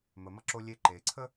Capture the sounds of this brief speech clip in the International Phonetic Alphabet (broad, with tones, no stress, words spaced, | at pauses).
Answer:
mə˩mʌ˦ǁo˦ lʲe˦ǃe˩ ǀʰə˥